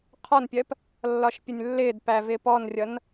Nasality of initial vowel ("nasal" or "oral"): oral